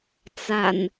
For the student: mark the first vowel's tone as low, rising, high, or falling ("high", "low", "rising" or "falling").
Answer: low